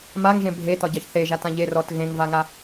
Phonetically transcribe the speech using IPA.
m a ŋ ʒ ẽ bʱ e t ɒ ɟ ɑ ç θ e ʒ a t ã ʎ e r ɔ t ɣ ẽ ŋ v a ŋ a

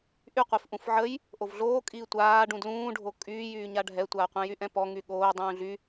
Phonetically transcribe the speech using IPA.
ʔ y qʷ i f ʔ ũ f ʕ ə j | ʔ o v ɮ oː kʼ iː tʷ aː ɖ ũ d l ũː ɖʱ o kʼ yː j yː ɲ a ɖʱ ɛ tʷ aː qʷ ɛ̃ j y ʔ ɛ̃ p ɔ ŋ y ɠ oː dˤ ũː ɮ y

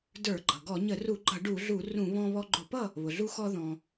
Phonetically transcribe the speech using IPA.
d ə˞˧˩˧ ɡ͡ǃ ʌ˩ ɡ ɔ˧˩˧ ɲ ə˧˩˧ r u˧˩˧ ɡ͡ǃ ʌ˧˩˧ ɖ u˧˩˧ ɮ u˧˩˧ r ũ˧˩˧ β ɔ̃˧ β ɔ˧ ɡ͡ǃ ʊ˧˩˧ p ʌ˥˨ | β ʊ˩ ɮ u˧ x ɔ˧ ð ɔ̃˩

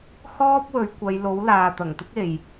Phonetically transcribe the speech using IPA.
h ɔː˥ p̚ w ɵ˨˧ ɥ kʷ ɐ˨˧ j l o˨˥ w l aː˨ t̪ ɐ˨˩ ŋ t̪ ɪ˥ k̚ e˨ j

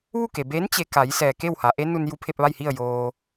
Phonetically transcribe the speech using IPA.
ʋ u˥˨ k e˩ b eː˧˥ n t͡ɕ e˧ k a˩˧ j s ɛː˩ k e˥˨ w h a˩˧ ʔ e˧˥ n u˧ n j u˧˥ pʰ e˧ p̚ ʋ a˥˨ j h i˥˨ ə̯ j oː˧

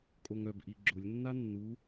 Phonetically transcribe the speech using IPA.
kʼ o ŋ œ b ʔ i ɡ͡ǁ ʊ lʲ nː a nː u

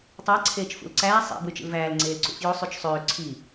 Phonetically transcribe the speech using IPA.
tˤ ɑ ǀʰ eː t͡ʃ f ṵ l ǀ æː sˤ ḭ b w y t͡ʃ ḭ l v æː l ŋ͡ǀ eː l ǀ ṵ f j o sˤ y t͡ʃ sˤ øː ǀʰ i

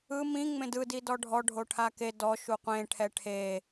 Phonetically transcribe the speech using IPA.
ɯ m ĩ ŋ͡m ẽ d ɯ d i d ɔ ɖʱ ɔ ɖʱ o ʈʰ a k e d ɔ ʃ u qʷ ẽ ʈʰ ɛ ʈʰ e

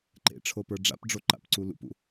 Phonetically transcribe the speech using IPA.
ǃ ḛ ʈ͡ʂʰ o p ə˞ ɖ͡ʐ a̰ p ɖ͡ʐ o ǃ a̰ p ǀ u l ṵ p ṵ

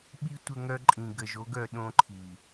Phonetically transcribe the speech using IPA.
ɓ i˦ tʷ ə˦ ŋ œ˦ ǃʼ ĩ˨ ɡ ə˨ ʒ o˦ ɡ œ˨ ɗ õ˦ ǃʰ i˨

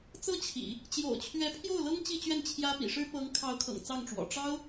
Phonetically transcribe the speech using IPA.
t͡s ɤ˥ t͡ɕʰ ḭ˨˩˦ | t͡ɕ j o̰˨˩ ʊ̯ t͡ɕʰ ɥ ɛ˧˥ pʰ j o˥˩ ʊ̯ l ɤ˥ ŋ t͡ɕ i˥˧ t͡ɕ ɥ ɛ˥˩ n t͡ɕʰ j ä˥ p ḭ˨˩ ʂ ɻ̩˥ p ɤ˧˥ ŋ kʰ ɑ˧˥ ʊ̯ kʰ ɤ̰˨˩ ŋ t͡s ɑ˥˩ ŋ ʈ͡ʂ w ɔ̰˨˩ ʈ͡ʂ ɑ˥ ʊ̯

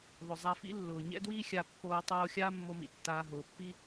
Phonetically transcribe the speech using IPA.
ðˤ ʊ˩ zˤ a˧ f ḭ˥ lː ʊː˩ ɲ ɛ̰˥ d w iː˥ xʲ a˧ pː oː˧ tˤ oː˧ xʲ aː˥ mː o˧ m ḭ˩ tː aː˧ ɦ ʊː˩ pː i˥

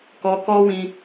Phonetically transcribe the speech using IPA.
k ɔ˧ k ɔ˦ w ĩ˧

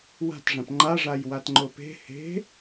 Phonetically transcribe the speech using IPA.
w a̤ t ʐ ã p ŋ͡ǃ a ʐ a j w a t ŋ͡ǃ o p e̤ h e̤

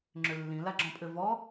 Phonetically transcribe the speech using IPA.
ŋ͡ǁ ʏ lː ĩ l a ɡ͡ǁ ɔ̃ pʼ ʏ v ɔ

